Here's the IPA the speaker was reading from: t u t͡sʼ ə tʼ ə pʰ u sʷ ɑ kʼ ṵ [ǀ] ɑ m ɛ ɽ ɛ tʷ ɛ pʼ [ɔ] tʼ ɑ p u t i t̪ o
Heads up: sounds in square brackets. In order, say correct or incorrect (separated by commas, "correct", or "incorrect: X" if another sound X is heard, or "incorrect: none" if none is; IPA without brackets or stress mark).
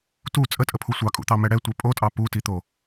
incorrect: t̪, incorrect: o